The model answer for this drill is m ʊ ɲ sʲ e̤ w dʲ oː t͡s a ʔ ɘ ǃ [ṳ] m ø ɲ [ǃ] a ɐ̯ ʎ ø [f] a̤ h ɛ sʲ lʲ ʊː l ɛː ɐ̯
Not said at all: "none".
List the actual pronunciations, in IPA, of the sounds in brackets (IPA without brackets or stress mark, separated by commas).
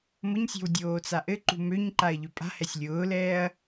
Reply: ṳ, ǃ, pʼ